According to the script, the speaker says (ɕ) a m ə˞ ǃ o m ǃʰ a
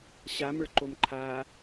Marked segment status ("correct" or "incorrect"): correct